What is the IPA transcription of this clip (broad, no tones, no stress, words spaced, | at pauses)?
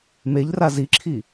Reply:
meʎra ziǁʰi